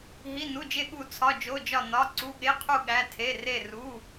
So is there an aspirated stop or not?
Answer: yes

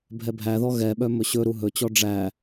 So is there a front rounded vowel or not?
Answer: yes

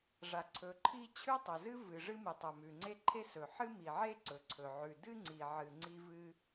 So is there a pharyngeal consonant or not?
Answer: yes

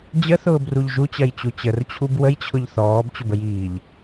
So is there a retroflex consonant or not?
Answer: no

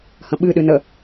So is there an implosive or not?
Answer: yes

